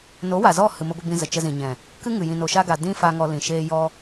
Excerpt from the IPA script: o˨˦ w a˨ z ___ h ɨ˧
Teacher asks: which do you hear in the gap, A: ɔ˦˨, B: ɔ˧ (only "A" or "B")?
A